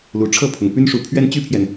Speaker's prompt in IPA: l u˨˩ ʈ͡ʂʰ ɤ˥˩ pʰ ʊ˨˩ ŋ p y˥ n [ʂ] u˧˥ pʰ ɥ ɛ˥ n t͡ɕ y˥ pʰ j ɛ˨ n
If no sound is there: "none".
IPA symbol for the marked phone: ʂ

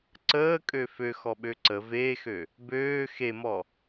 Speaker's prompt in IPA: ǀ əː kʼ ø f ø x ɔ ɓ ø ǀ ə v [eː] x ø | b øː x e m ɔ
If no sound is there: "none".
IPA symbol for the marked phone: eː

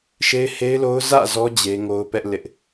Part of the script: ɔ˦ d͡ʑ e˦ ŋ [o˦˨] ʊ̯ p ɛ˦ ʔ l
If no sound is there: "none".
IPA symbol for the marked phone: o˦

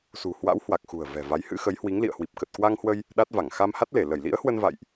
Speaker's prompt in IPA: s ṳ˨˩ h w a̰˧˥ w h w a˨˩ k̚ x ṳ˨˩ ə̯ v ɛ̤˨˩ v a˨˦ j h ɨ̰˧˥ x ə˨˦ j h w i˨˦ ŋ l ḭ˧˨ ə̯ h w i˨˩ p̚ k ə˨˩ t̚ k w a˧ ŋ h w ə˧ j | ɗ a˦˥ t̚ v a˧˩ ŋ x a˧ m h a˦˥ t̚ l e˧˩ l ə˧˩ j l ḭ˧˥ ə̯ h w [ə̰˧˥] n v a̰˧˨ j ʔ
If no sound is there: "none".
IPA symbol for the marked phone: ə˧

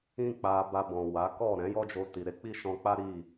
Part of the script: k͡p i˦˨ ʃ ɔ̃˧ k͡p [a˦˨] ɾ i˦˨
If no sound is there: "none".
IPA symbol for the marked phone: a˦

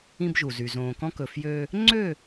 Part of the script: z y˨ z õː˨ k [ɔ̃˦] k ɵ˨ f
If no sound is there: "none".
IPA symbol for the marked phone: ɔ̃˦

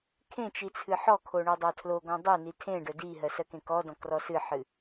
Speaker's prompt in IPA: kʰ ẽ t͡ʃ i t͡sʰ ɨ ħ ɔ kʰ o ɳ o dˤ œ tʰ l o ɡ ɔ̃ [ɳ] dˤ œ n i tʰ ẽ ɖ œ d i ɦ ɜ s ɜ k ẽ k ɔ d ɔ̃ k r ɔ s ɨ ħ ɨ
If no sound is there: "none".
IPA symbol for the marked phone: none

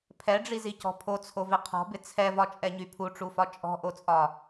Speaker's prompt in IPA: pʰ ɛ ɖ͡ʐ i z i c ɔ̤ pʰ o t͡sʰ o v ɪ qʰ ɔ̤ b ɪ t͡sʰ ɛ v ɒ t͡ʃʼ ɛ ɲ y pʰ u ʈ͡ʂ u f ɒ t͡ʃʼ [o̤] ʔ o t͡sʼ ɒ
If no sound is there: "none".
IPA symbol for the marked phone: ɔ̤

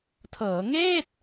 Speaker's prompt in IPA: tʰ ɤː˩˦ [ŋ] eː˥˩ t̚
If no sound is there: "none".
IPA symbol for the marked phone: ŋ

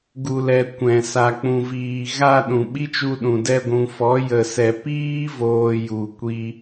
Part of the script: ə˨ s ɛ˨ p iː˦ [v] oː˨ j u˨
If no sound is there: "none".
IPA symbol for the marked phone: v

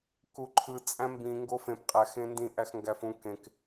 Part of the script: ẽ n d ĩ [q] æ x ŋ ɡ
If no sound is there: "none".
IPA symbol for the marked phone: ʔ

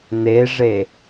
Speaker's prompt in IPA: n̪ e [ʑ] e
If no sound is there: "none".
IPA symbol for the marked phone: ʐ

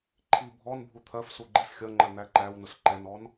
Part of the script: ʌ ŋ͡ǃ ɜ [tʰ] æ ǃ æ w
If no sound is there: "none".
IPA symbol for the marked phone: n̪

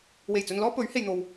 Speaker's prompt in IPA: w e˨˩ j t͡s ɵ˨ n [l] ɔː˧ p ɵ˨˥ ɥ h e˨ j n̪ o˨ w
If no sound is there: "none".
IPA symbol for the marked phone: l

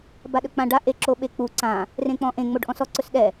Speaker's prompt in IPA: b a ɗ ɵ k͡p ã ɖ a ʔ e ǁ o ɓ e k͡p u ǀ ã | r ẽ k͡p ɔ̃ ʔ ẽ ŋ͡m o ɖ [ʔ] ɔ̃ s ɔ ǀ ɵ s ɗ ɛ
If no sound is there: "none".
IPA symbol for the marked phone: ʔ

